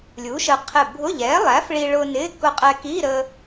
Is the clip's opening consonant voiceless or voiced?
voiced